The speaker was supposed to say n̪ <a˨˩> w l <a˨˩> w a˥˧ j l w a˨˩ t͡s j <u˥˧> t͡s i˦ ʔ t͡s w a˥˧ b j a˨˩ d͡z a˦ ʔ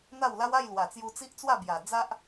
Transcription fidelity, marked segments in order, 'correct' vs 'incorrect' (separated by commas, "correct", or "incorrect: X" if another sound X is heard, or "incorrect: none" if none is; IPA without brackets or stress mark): incorrect: a˥˧, incorrect: a˦, incorrect: u˧